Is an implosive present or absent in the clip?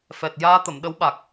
present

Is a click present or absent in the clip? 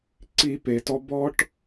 present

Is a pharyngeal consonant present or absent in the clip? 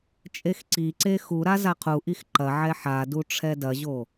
present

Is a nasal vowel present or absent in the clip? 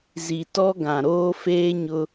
present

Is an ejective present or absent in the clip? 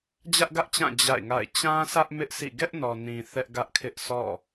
absent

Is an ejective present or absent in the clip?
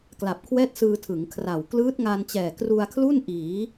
absent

